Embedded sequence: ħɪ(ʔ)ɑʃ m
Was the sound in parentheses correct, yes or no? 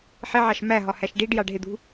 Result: no